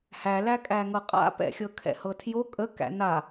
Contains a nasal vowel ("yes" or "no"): no